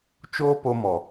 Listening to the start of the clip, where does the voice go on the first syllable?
high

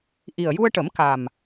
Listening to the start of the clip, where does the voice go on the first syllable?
low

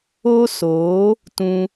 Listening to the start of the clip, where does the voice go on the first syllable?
high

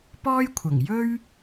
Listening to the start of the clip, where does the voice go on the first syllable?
high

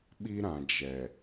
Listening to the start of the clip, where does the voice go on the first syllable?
high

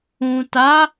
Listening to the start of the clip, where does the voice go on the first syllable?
low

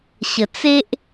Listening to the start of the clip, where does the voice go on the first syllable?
low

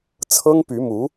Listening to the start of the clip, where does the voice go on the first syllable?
high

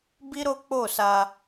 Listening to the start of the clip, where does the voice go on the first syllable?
high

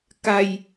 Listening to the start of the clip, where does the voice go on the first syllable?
low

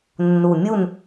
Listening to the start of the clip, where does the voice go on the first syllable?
low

